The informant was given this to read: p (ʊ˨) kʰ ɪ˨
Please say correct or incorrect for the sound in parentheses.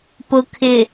correct